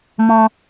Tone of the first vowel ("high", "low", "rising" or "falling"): high